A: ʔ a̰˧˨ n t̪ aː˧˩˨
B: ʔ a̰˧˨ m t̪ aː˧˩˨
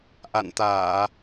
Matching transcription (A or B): A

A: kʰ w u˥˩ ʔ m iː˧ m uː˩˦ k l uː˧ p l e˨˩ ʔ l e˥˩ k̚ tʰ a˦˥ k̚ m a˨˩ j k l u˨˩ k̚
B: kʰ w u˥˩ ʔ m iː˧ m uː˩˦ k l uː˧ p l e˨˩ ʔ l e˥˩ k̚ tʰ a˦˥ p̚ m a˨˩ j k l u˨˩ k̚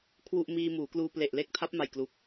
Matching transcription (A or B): B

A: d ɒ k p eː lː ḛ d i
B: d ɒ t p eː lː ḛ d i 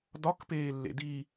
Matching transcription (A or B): A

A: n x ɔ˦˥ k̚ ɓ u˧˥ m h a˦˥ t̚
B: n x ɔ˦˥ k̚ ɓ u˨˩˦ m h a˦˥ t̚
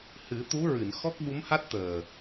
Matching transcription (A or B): A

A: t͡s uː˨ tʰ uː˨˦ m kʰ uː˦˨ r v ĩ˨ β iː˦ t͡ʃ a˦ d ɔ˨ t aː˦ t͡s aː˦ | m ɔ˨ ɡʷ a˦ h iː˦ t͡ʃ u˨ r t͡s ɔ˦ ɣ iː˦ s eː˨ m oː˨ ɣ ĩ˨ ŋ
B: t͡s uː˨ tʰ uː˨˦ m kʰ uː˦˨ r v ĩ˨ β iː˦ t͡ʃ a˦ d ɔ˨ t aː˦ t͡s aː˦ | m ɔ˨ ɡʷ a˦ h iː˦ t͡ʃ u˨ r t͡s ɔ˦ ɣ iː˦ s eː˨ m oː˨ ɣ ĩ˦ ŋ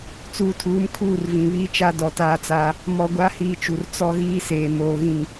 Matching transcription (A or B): A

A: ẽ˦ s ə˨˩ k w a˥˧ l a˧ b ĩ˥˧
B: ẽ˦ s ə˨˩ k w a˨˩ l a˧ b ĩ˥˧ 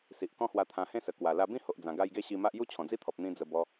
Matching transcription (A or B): B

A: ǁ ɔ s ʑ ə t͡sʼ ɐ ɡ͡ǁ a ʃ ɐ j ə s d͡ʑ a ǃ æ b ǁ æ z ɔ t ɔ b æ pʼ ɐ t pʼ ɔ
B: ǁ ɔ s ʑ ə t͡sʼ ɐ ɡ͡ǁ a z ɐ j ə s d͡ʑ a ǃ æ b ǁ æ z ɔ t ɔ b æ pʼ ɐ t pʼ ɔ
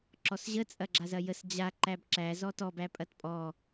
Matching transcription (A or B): B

